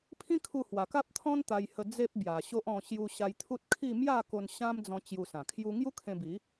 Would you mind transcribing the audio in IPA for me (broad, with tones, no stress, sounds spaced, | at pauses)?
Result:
pʰ ĩ˦ kʰ u˧ h w a˨˩ k a˦ p̚ t̪ʰ ɔ̃˦ n t̪ a˧ j h ə˧ d͡z e˦ p̚ b j a˨˩ ɕ o˦ ʔ ɔ̃˧ ɕ j u˧ ɕ a˧ j t̪ʰ u˦ t̚ kʰ i˥˧ m j a˥˧ k o˧ n ɕ ã˦ m d͡z ɔ̃˧ t͡ɕ j u˧ s ã˨˩ kʰ j u˦ ŋ j u˦ kʰ ẽ˧ b i˨˦